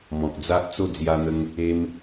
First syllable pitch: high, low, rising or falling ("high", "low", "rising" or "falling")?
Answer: low